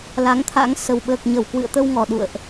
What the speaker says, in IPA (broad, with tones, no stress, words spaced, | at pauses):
la˨˦ŋt̪ʰa̰˧˥ŋ sə˨˩wɓəː˨˩k̚ ɲə˧˩wkwɨ̰˧˨ə̯t̪ə˧wŋɔ˨˩ ɗṵ˧˨ə̯ʔ